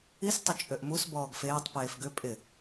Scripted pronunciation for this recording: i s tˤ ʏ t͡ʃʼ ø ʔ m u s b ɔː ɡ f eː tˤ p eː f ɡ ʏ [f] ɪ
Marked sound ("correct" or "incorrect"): incorrect